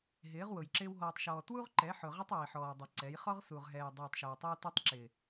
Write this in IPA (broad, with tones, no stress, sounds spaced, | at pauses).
ɦ ɪː˨˦ ʁ w ʊ˨ j ǁ ɪː˦ w ɦ ɔː˨ tˤ ʃ ɔː˨ t w u˦ ʁ ǃ ɛ˨˦ ħ ʊ˨ ʁ ɪ˦ tˤ w i˨ ħ ɔː˨ dˤ i˨ ǀ ɛ˨˦ j χ ɔ˦ ʁ s u˨ ʁ ɦ ɛː˨ j dˤ ɛː˨ tˤ ʃ æ˨ w tˤ ɛ˦ w t u˦ tˤ ǁ ɪ˨